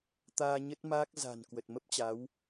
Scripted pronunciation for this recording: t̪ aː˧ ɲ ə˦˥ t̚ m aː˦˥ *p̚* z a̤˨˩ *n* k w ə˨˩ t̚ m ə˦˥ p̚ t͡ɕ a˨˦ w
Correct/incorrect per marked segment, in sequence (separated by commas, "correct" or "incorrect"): incorrect, correct